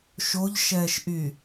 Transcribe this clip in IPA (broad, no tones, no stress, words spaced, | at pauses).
ʃoʎʃɛːʃʔy